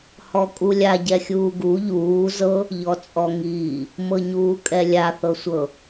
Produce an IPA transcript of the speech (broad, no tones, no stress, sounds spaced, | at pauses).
h ɔ kʼ u lʲ a ɟ ɛ xʲ uː ɡ u ʎ uː z ɤ | ʎ ɔ t͡sʼ ɔ ŋ iː | m ɤ ɲ uː kʼ ɛ lʲ a θ ɤ sʷ ɤ